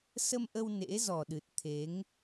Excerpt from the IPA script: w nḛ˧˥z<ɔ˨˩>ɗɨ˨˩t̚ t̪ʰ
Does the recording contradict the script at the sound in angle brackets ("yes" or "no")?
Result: no